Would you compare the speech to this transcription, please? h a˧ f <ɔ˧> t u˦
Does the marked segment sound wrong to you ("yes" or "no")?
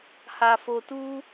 yes